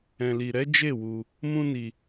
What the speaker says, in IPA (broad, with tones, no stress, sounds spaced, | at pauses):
ɛ̃˨ l i˨ ɾ ɛ˨˦ d͡ʒ e˦˨ w u˧ | m ũ˦ n i˧